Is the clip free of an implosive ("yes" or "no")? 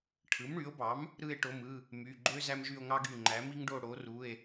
yes